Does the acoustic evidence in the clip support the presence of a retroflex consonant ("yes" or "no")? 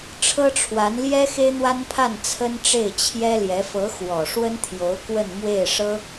yes